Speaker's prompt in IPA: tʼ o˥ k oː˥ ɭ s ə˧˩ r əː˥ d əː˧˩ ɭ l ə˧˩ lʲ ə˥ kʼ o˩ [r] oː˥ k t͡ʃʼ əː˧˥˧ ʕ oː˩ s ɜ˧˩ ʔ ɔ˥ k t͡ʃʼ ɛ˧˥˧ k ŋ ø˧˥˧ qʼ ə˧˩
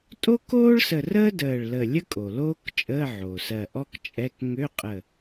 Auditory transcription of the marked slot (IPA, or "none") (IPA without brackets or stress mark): l